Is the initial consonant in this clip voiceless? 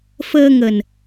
yes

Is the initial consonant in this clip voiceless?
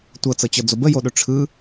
yes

